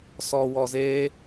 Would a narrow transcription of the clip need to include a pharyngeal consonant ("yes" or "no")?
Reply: no